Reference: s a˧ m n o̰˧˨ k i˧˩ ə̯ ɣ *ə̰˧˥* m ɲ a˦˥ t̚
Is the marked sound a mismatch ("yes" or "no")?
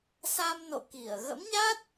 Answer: no